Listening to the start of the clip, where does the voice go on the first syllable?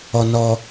low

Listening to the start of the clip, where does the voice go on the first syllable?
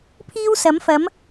high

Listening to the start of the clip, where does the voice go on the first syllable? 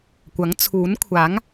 rising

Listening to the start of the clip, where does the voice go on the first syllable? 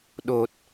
low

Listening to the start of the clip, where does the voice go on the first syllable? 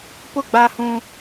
falling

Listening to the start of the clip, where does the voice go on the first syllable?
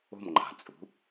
falling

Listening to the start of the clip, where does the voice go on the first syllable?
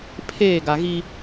falling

